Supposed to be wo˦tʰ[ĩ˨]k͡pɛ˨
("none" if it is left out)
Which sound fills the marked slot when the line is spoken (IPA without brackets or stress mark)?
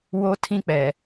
ĩ˦